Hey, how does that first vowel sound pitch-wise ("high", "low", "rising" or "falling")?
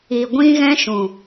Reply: low